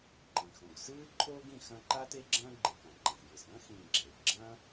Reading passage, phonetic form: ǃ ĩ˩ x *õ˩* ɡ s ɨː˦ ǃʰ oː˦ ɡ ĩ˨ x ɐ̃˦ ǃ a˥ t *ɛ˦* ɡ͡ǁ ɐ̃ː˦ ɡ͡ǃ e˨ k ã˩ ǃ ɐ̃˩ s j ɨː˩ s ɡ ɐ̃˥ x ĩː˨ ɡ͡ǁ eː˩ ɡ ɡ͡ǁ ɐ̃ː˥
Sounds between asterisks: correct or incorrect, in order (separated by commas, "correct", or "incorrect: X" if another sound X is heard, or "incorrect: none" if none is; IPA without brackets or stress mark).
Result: correct, incorrect: e˦